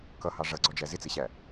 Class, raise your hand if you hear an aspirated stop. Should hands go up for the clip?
no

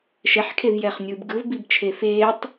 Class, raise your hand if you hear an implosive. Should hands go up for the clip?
no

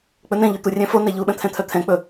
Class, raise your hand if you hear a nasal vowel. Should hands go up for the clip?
yes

